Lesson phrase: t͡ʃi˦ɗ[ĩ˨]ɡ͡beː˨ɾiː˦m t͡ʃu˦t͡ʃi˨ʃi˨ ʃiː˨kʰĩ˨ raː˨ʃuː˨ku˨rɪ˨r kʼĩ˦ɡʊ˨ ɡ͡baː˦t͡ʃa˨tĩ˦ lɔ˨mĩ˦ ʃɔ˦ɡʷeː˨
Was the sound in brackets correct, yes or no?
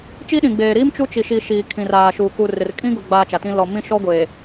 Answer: yes